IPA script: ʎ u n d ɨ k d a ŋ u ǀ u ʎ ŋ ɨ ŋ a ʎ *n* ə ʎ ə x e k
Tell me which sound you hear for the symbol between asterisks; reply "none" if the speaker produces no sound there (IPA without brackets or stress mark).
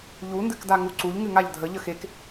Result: dʱ